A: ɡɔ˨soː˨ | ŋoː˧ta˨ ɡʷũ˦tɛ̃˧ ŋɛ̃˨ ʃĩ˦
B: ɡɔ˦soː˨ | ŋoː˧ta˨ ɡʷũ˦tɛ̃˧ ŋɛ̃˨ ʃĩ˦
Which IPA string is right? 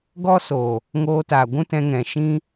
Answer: B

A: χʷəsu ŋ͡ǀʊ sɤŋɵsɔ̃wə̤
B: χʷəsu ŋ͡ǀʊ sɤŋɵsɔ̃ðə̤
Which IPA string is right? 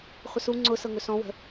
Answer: A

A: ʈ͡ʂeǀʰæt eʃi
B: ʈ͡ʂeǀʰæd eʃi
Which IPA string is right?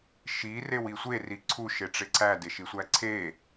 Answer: B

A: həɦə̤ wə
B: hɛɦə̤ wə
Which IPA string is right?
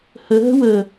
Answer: A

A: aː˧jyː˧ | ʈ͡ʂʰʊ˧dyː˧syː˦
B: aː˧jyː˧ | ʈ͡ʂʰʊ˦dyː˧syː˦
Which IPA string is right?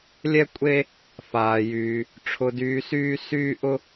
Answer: A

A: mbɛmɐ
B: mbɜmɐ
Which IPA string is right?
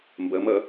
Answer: B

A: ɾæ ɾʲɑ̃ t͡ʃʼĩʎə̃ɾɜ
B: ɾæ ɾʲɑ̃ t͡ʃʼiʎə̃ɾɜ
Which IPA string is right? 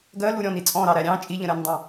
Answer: B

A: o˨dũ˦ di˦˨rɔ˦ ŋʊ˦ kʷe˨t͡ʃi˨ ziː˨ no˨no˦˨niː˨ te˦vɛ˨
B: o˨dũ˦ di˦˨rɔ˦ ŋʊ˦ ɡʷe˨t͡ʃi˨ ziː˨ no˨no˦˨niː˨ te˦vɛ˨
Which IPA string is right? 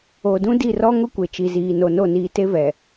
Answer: A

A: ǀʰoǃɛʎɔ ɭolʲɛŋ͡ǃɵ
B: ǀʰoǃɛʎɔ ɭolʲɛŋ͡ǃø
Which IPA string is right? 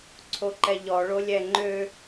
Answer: B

